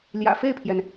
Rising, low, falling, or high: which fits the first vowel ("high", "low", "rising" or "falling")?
low